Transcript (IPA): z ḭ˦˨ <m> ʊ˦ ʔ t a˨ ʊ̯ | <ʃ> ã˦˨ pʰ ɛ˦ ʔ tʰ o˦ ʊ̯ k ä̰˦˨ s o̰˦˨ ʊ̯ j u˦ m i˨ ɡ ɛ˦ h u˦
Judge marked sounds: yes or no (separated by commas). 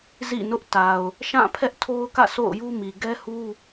no, yes